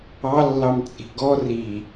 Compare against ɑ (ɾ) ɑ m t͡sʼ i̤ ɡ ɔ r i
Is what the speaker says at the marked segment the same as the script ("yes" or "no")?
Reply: no